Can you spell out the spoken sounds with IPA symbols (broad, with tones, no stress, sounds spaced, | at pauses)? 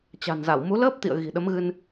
t͡ɕ a̤˨˩ n z a˧˩ w m u˨˦ l əː˦˥ p̚ t̪ ḭ˧˨ ə̯ ɣ i̤˨˩ ɗ ə˨˦ m ɣ ɨ˧ n